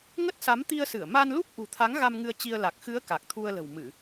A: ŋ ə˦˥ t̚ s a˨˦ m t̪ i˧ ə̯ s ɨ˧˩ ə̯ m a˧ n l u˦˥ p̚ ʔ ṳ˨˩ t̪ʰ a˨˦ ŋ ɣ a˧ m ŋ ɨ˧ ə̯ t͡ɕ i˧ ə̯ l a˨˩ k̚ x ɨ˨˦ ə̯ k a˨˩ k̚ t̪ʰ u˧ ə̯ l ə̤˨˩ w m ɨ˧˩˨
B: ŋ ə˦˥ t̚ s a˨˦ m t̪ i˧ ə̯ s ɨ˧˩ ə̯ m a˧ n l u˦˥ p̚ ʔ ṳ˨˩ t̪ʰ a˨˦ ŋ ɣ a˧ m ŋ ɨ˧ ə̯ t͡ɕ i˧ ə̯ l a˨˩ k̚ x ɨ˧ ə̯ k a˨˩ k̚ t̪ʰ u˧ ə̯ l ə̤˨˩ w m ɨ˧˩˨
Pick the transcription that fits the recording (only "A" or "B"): A